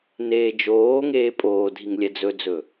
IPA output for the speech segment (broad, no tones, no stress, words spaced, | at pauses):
neːd͡ʒoːŋeː pʼoːdʱiŋ lʲɛd͡zɵd͡zɵ